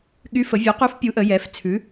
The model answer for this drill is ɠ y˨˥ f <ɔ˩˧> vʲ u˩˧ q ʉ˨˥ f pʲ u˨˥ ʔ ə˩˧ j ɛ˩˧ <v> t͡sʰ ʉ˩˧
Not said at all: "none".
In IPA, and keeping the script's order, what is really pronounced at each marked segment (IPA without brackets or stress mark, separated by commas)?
ə˩˧, f